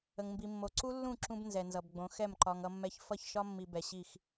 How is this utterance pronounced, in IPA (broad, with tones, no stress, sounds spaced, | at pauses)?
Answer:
ə˨ ŋ m b i˨ mː o˨ ǀ u˦ lː ũ˦˨ ǁ ũ˦ b n z ɛ˨ n z ʌ˨ b ɡ͡b õ˨˦ x ɛ˦˨ m ǃ ɒ˨ ŋ ʌ˦ mː ɛ˦ ç f ʌ˦˨ ç ʃ ɒ˦ mː i˨ b ɛ˨ ɕ i˦˨ x